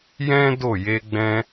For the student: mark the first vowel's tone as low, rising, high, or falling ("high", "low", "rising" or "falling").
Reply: high